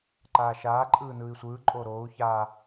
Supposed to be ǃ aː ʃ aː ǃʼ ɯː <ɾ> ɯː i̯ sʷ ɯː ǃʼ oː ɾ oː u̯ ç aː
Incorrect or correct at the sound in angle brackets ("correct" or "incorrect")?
incorrect